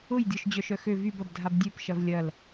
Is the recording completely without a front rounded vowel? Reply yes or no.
no